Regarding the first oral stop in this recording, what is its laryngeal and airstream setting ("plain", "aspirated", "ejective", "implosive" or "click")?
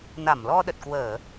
implosive